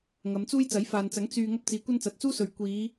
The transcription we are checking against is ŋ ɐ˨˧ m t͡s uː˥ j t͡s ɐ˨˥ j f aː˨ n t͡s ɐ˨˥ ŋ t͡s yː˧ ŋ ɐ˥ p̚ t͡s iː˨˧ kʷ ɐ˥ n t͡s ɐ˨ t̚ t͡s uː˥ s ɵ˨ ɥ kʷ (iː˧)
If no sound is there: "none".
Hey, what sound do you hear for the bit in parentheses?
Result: iː˨˧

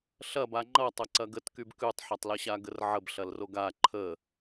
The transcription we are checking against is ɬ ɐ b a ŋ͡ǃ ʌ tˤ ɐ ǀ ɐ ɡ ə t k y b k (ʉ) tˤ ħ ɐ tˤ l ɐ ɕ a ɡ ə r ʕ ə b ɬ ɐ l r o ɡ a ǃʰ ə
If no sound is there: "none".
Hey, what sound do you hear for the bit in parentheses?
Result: ʉ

